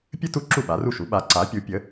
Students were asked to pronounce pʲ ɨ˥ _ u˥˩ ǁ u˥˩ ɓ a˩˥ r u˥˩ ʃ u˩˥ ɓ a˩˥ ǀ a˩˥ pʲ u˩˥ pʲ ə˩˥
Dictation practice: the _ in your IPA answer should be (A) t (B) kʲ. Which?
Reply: A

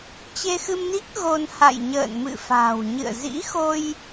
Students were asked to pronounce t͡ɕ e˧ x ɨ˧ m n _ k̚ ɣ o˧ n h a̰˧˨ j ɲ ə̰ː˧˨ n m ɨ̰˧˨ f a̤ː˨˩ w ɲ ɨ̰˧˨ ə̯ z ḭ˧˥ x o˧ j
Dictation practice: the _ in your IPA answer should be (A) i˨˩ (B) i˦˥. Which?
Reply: B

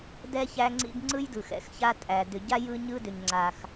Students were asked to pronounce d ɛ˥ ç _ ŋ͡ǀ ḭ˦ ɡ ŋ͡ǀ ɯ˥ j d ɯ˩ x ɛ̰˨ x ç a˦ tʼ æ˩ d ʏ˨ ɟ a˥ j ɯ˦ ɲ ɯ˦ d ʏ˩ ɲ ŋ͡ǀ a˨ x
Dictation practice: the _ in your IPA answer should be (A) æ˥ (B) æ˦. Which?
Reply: B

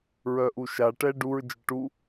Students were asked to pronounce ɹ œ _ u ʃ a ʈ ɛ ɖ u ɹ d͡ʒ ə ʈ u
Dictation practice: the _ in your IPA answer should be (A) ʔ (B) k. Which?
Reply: A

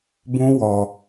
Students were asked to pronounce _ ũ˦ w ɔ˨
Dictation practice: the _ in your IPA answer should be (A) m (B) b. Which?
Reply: B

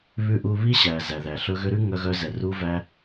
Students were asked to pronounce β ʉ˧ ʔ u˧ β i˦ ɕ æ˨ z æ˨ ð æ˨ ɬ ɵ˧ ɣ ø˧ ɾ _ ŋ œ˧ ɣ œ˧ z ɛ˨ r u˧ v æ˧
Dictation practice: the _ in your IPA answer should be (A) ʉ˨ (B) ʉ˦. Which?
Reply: B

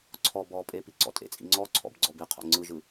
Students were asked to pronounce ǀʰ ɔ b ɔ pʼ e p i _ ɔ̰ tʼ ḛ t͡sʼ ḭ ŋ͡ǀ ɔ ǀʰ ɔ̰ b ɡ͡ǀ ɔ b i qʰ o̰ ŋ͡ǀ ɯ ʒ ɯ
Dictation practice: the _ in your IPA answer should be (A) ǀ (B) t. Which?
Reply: A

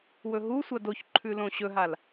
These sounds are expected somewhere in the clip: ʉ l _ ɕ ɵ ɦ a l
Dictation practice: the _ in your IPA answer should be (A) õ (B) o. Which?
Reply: A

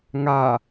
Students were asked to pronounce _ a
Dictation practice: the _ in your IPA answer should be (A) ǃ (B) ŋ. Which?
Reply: B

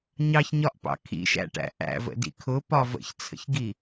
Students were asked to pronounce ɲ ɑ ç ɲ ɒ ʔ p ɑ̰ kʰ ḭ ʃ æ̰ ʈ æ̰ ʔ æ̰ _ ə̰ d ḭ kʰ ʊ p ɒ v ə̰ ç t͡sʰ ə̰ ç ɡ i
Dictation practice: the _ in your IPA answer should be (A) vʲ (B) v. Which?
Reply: B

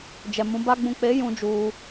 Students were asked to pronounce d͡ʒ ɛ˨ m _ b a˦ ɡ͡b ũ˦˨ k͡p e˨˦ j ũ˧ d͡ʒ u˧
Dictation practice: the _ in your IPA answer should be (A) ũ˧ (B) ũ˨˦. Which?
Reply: B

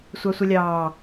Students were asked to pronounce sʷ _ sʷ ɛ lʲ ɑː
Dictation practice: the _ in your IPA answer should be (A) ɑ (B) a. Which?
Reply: A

